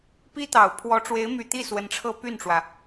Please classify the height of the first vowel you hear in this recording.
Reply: high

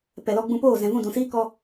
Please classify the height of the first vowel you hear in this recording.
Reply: mid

